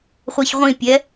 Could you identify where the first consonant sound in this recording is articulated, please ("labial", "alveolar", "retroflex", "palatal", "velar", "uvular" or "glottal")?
uvular